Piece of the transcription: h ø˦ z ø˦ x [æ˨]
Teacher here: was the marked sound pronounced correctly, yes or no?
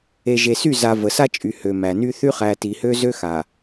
no